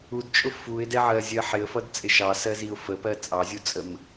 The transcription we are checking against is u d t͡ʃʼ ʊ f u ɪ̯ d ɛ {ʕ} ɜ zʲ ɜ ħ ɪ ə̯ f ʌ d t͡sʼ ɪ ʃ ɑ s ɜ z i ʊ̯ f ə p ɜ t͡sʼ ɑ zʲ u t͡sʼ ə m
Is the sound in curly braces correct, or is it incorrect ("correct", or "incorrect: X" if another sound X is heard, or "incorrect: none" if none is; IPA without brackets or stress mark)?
correct